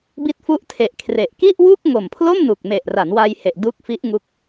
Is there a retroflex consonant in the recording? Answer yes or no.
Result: no